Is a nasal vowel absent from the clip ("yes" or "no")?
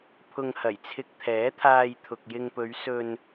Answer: yes